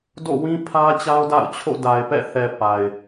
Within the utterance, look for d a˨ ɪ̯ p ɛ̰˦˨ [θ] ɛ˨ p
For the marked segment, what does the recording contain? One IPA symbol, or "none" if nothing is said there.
θ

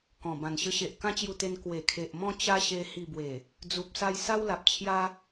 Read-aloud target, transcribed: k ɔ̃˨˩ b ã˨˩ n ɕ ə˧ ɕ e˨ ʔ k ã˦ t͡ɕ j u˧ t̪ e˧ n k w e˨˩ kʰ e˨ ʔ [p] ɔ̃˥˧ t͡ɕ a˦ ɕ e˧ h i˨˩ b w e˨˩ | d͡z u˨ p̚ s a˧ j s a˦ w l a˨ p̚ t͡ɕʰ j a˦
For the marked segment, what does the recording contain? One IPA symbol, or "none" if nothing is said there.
m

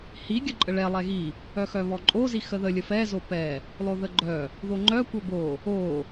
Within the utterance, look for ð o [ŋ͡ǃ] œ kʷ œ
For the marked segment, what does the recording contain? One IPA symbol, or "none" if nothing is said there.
ŋ͡ǃ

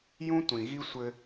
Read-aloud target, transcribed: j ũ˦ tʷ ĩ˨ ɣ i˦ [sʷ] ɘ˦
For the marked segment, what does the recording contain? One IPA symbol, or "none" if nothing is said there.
sʷ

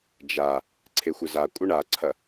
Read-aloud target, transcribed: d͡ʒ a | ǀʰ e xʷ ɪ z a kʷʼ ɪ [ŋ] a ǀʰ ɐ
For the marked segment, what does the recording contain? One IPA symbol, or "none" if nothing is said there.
ɳ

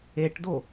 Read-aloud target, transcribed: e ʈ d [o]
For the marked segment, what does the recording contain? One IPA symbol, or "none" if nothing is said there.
o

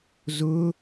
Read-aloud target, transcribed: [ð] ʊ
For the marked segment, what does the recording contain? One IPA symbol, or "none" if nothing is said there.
z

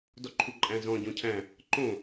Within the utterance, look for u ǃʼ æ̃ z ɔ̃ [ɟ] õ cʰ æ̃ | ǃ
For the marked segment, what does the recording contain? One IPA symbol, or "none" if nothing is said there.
ɟ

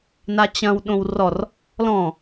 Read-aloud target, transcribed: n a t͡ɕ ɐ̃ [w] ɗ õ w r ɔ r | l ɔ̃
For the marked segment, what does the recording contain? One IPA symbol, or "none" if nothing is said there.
w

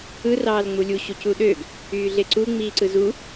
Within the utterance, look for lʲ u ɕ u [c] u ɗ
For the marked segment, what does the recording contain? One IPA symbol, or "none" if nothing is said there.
c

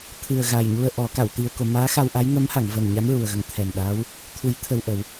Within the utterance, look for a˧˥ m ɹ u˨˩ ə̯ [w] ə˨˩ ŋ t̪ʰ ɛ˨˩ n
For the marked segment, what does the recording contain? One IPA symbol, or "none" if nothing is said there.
ɣ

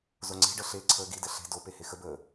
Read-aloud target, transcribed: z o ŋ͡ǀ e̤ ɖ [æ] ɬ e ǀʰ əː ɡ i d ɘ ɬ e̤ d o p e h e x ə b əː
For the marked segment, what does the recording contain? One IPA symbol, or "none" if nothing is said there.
ə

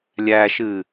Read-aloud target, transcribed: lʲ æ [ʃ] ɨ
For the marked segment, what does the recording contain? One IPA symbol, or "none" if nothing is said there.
ʃ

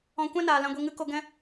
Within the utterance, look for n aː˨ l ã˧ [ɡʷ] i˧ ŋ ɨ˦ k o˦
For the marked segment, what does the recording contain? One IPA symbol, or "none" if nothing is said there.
ɡʷ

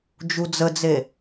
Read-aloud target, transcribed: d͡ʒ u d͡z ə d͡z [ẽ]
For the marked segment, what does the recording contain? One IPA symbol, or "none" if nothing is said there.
e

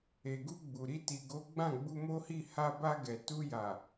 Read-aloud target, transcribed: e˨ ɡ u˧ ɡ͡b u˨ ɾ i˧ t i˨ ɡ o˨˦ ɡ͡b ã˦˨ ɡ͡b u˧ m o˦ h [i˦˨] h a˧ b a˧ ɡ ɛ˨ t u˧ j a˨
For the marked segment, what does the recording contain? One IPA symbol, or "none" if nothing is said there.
i˦˨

